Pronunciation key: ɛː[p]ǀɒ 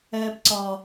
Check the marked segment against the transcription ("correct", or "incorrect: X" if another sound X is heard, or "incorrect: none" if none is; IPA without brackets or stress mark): correct